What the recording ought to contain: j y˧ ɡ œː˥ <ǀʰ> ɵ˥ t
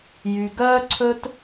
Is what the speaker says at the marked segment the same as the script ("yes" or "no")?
yes